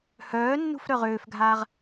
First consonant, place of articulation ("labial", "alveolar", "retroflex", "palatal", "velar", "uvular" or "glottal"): glottal